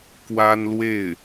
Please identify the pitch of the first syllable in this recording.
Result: high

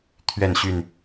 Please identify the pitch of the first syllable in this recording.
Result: falling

